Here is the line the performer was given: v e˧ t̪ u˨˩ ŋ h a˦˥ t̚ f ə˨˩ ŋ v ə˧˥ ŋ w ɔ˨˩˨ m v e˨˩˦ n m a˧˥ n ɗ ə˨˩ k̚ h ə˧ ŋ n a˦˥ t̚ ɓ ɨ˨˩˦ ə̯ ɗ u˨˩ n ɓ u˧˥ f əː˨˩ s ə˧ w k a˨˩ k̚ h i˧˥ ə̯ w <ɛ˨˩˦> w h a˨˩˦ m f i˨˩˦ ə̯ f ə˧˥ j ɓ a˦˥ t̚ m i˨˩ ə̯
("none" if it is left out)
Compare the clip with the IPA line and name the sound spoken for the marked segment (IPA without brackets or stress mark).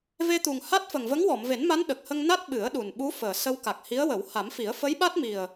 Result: ə˨˩˦